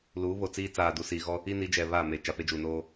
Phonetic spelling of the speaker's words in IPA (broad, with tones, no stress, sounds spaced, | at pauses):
l uː˨˦ β o˨ t͡s iː˦ t͡s aː˨ d u˨ s iː˨ ɣ ɔ˦ | i˦ n i˨˦ d͡ʒ ɛ˨ β a˦˨ m e˨ t͡ʃ a˨ p e˦ d͡ʒ uː˨ n oː˦